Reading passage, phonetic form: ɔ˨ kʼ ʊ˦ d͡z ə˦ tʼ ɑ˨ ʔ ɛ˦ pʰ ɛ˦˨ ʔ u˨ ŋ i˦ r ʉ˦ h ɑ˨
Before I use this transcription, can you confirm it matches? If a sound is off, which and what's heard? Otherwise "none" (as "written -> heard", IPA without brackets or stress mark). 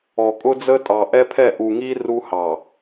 ʉ˦ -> u˦